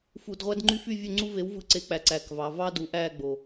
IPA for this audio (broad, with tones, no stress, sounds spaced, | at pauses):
f u˧˩˧ d ʁʷ æ˦ d ŋ͡ǃ y˥˨ f y˥˨ vʲ ø˥˨ ŋ͡ǀ u˦ v e˨˥ w v ɯ˨˥ ǀ e˨˥ k͡p æ˩˧ ǀ æ˨˩ k v ɑ˩˧ v ɑ˦ d u˩˧ ʔ æ˥˨ ɡ͡b o˨˩